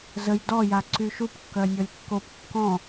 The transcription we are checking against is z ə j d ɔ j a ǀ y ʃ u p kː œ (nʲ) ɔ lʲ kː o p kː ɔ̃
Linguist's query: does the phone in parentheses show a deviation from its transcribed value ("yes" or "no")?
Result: no